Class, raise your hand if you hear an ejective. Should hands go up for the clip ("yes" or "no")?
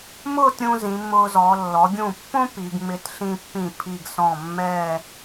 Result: no